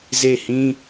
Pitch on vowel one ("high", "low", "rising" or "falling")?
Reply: falling